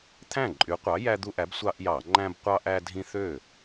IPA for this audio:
t̪ʰ æ̃˥˩ ǃʼ y˨˥ qʷ ɑ˨˥ j æ˦ d̪ u˦ ʔ æ˨˥ b sʷ ɑ˦ ʔ j ɑ˧˩˧ ŋ͡ǃ æ̃˦ b qʷ ɑ˦ ʔ æ˦ dʱ ĩ˦ θ ø˥˩

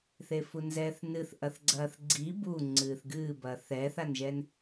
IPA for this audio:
θ e f u n z ɛː θ n ɨ θ ʔ ɐ θ ɡ͡ǀ ɐː θ ɡ͡ǀ i b u ŋ͡ǀ ɨː θ ɡ ɨː b ɐː θ ɛː θ a n ʒ ɛ n

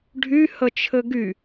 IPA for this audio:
ɖʱ y h ə t͡ʃʰ ɘ ɡ y

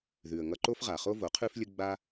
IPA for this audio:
ð ʉ˨ ə̯ ŋ ʌ˧ ǃ o˦ f ʁ a˨ χ o˦ v o˨˦ qʰ ʉ˦ f lʲ ə˦ ɡ͡b a˦

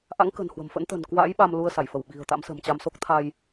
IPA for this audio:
ʔ a̰˧˥ ŋ k ə̤˨˩ n h w ə̤˨˩ m f ə̰˧˥ n t̪ ə̤˨˩ n k w a̰˧˥ j ɓ a˧ m l u˧ ə̯ s a˧˩ j f ə˧˩ w ɓ i̤˨˩ ə̯ t̪ a̰˧˥ m s ə̤˨˩ m t͡ɕ a˧ m s o˦˥ k̚ t̪ʰ a˧ j

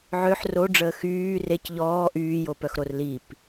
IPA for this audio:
ʕ ø ħ r o ɖ͡ʐ əː x yː r e c ʎ ɔː ʔ yː j o p œ x ɾ o r l i p

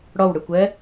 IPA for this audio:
ɽ ɔ w ɽ ɨ kʷ ɛ

